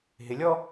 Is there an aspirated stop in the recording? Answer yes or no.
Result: no